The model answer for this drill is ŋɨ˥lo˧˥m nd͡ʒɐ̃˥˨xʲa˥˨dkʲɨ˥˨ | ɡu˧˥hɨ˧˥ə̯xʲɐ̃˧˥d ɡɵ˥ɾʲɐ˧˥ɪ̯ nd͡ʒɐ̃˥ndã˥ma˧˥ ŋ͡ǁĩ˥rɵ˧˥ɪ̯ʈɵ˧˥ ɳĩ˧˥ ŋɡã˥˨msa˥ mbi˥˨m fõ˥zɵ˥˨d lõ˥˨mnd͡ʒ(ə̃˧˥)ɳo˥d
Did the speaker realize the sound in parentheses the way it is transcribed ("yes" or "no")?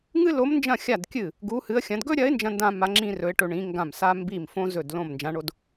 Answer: no